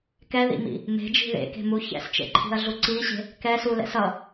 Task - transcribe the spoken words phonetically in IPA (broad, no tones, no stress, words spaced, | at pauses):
kɛðḭmḭ | me̤d͡ʒi̤ ðḛke̤mu çɛ̰st͡ʃḛǃʰi̤ɐ̯ɮu ǀiɕe̤ | kɛ sulɛ̰sʌ